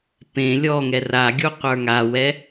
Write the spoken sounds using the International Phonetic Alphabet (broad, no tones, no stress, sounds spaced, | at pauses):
p ẽ lʲ ɔ ŋ ɛ r a ɡʲ u qʷ ə˞ ŋ a w ɛ